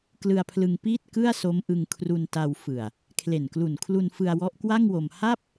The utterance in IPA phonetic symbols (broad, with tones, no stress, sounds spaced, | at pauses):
k l ɯ˧ a̯ pʰ l ɯ˧ ŋ p iː˥˩ t̚ k ɯ˥˩ a̯ s o˦˥ m ʔ ɯ˧ ŋ kʰ r u˧ n t a˧ w f ɯ˨˩ a̯ | kʰ l e˨˩ n k l u˨˩ n kʰ l u˧ n f ɯ˧ a̯ w ɔ˦˥ ʔ k w a˥˩ ŋ w o˧ m h a˥˩ p̚